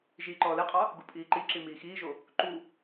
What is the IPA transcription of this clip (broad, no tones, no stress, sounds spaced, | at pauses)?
ʒ iː ǃ ɔː l e qʼ ɑ | ɡ u pʼ iː ǃ i ǁ i m iː x iː ʒ o | ǃ u